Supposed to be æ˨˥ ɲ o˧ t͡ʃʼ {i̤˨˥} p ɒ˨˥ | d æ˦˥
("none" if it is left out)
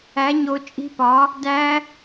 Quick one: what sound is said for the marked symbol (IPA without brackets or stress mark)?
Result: i̤˦˥